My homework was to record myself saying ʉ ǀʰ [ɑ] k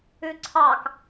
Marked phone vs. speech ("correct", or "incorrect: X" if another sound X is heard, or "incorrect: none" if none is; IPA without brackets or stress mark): correct